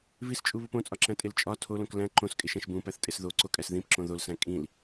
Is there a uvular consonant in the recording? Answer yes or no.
no